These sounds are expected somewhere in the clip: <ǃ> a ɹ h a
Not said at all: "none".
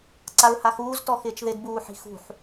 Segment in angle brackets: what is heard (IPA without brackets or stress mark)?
ǀ